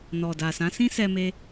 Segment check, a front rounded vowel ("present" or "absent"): absent